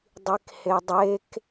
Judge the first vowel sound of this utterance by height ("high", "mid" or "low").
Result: high